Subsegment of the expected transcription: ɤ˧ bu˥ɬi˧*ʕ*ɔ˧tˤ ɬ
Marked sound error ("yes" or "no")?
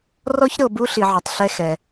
no